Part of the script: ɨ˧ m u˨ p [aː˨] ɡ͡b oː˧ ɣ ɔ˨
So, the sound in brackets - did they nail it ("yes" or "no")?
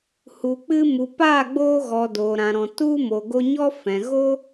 no